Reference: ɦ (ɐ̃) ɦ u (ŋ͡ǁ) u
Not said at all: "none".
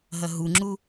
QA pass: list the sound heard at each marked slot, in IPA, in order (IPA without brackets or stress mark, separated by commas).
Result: ɐ, ŋ͡ǁ